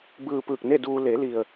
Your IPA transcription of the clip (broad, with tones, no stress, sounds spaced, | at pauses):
b ɯː˧ p ɯː˧˩ k̚ n e˥˨ d uː˧ l e˩˧ l i˩ ə̯